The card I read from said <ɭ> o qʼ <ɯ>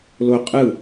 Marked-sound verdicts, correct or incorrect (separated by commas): incorrect, correct